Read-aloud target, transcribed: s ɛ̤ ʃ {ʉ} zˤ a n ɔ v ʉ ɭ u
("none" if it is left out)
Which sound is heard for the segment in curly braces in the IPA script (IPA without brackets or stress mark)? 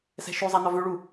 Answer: ʉ